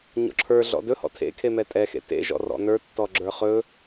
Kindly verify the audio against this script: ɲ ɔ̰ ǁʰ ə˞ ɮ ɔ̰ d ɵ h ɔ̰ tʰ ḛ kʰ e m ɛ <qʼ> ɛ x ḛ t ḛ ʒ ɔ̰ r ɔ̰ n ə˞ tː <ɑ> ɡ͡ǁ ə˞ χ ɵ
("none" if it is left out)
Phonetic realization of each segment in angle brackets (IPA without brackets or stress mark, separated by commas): tʼ, ɔ